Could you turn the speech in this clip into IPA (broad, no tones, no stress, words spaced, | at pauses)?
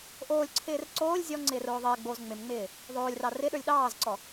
ʔoːlʲǀʰɪːr ǀoːlʲ zʲɔŋ͡ǀɪːr oːðˤɪːɡ͡boːz ŋ͡mɪmŋ͡mɪː | ðˤoːlʲrɑ rɪɗə˞lʲ ɗɑːzǀɔ